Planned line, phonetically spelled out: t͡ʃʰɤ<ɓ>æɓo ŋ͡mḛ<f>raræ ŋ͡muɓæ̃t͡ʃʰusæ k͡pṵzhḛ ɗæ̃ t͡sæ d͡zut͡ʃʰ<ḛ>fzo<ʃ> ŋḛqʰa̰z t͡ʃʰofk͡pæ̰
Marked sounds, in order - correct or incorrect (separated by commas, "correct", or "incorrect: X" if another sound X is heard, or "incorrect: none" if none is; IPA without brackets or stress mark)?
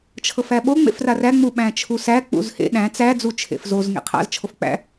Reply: incorrect: f, correct, correct, incorrect: z